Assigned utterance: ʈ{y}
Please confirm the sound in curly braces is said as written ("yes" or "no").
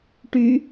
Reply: yes